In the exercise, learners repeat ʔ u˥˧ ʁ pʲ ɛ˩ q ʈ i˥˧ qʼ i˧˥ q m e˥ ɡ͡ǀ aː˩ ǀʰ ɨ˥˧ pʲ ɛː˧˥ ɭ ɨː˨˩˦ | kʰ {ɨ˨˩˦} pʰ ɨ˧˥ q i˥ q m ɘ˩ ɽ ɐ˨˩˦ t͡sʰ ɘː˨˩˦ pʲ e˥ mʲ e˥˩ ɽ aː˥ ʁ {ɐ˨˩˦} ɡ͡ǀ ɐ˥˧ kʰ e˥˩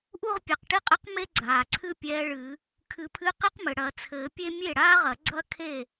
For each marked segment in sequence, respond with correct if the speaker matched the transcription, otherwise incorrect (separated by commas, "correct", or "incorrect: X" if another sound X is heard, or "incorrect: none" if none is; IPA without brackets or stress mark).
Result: correct, correct